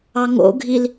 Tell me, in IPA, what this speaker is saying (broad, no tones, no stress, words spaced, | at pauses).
ɑŋo̰ɡʱil